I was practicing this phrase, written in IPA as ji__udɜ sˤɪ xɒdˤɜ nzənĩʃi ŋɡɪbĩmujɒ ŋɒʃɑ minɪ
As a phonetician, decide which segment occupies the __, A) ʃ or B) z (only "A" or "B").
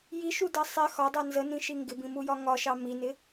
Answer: A